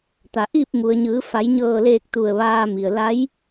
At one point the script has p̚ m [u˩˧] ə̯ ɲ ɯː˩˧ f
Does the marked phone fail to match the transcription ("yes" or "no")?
yes